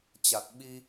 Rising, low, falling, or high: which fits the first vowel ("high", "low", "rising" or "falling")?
low